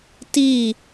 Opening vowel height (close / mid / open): close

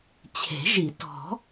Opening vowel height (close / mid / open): mid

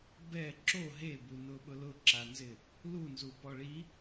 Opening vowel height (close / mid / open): mid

